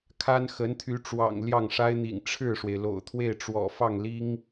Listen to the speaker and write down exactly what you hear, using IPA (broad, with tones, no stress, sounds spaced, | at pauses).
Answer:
kʰ a˥ n x ə˧˥ n t̪ʰ y˧˥ ʈ͡ʂ w ɑ̰˨˩ ŋ l j ɑ˥˩ ŋ ʂ a˥ ɪ̯ n̪ ḭ˨˩ ŋ ʈ͡ʂʰ ɻ̩˥˩ ʂ w e˩ ɪ̯ l o̰˨˩ ʊ̯ t̪ʰ w e˥˩ ɪ̯ ʈ͡ʂ w ɔ̰˨˩ f ɑ˥˩ ŋ l i˥ ŋ